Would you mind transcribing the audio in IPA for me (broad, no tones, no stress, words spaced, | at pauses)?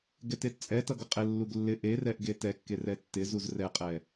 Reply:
ɡɛtett͡sʼɛtʌ ɡʌqʼɪlːuɡ lːɪ ʔerɛʔ ɡetɛkːe rɛtːɪzuz rɛqʼɛ